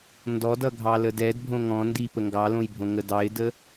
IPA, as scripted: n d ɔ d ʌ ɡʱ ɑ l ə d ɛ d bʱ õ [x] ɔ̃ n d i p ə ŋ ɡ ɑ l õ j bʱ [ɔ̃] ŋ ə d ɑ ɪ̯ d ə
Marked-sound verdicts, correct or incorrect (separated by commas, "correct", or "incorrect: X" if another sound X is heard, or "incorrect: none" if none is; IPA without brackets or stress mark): incorrect: ŋ, incorrect: õ